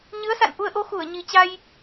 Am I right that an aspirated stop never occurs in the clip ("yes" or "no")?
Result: yes